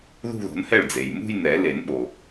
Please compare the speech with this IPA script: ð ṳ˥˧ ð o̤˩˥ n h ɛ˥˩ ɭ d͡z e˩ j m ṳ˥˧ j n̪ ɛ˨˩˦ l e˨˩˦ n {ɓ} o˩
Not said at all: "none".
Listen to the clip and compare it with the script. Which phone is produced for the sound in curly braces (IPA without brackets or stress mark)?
ɓ